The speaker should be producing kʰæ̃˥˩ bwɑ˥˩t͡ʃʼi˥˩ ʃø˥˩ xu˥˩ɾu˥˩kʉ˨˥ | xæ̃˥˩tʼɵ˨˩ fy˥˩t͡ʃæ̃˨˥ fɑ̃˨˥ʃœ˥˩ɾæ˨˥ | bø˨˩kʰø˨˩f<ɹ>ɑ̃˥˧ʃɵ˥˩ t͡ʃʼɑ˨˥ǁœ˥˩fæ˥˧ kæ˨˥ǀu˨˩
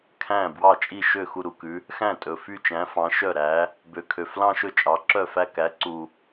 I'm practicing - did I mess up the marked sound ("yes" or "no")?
yes